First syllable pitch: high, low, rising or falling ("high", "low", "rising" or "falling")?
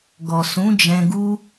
low